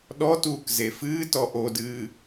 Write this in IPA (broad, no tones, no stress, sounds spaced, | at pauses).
ɗ ɔ t uː k z e f ɨː t ɔ ʔ o d ɨː